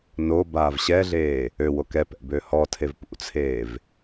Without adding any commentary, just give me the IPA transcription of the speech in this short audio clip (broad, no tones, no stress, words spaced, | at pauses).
no baːvɕɛɮeː | øwok ɛpɛ̰ bøhɔtʰev pṵt͡sʰeːv